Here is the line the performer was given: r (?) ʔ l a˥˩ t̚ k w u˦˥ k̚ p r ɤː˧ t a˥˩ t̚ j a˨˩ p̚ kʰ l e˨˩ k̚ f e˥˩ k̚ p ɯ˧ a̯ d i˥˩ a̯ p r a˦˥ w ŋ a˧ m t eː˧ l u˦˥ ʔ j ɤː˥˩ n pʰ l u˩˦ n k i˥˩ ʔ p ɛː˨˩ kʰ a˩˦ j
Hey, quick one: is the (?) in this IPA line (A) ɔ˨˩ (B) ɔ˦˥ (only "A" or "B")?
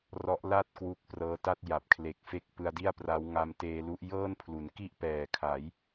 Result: B